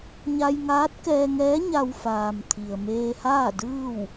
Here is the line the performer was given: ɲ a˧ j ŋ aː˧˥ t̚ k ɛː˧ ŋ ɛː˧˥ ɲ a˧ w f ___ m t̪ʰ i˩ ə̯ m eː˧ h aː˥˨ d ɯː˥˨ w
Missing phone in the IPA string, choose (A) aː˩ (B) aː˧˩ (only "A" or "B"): A